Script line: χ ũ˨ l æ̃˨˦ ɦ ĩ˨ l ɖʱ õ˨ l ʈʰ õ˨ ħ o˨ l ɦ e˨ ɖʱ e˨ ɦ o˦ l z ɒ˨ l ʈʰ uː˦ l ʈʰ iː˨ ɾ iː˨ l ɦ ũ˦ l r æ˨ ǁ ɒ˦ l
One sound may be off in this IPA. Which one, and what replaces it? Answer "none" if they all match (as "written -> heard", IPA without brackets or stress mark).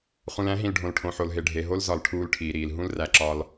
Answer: none